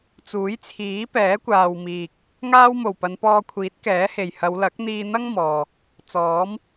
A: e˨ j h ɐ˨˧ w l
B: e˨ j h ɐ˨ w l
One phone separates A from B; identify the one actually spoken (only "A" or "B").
A